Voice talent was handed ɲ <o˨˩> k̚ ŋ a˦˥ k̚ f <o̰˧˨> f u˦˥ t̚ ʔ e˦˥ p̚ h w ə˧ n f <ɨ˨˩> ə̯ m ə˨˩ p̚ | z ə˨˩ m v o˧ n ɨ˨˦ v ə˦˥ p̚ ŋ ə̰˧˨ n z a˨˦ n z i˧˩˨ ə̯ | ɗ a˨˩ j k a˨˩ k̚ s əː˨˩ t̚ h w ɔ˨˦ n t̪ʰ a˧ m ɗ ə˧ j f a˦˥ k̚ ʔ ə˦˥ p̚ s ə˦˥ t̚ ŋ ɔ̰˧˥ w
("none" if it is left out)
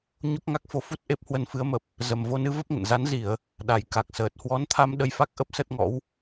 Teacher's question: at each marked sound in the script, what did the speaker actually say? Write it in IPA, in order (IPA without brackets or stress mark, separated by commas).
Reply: o˦˥, o˧, ɨ˨˦